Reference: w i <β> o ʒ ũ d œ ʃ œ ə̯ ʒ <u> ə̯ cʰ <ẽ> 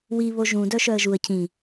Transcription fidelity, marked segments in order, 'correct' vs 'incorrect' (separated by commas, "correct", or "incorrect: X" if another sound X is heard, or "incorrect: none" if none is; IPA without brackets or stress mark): correct, correct, incorrect: ĩ